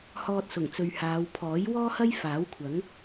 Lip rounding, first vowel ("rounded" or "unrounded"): rounded